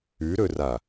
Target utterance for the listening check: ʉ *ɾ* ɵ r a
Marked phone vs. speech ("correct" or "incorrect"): correct